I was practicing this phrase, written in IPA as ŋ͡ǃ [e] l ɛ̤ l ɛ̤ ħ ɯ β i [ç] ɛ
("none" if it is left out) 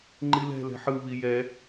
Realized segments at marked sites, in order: i, j

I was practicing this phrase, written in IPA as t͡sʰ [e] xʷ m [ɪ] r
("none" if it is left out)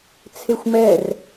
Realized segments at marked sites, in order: e, ɛ

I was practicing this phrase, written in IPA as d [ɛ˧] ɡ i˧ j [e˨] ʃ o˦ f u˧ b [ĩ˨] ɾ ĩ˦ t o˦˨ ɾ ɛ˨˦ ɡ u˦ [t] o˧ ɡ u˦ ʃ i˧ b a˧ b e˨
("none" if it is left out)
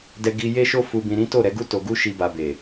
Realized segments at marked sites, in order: ɛ˧, e˦, ĩ˧, t

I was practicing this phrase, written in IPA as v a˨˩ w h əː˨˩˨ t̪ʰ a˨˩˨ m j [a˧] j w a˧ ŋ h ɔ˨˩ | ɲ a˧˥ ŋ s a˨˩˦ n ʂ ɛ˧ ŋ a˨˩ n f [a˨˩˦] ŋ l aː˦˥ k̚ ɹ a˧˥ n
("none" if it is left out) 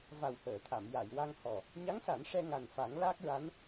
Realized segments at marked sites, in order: a˨˩˨, a˨˩˦

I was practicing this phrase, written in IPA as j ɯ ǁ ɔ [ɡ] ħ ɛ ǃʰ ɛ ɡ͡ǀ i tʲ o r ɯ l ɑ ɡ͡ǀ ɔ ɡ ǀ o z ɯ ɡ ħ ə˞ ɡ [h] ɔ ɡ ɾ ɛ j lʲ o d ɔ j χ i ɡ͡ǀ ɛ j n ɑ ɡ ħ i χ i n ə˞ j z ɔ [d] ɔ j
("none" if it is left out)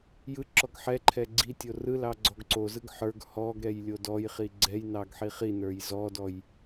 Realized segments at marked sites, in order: ɡ, h, d

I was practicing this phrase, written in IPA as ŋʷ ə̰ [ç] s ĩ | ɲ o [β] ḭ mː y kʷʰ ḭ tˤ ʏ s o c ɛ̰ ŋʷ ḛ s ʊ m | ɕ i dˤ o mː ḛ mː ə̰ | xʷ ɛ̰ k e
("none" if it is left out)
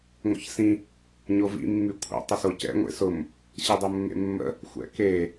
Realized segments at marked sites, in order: ç, v

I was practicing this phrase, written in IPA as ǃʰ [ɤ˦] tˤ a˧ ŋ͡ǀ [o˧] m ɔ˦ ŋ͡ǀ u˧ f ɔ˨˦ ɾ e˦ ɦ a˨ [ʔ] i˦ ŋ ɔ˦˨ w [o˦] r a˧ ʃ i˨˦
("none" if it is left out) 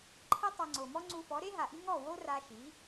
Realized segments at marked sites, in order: ɤ˦, o˨, ʔ, o˦

